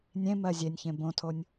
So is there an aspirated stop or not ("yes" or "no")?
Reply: yes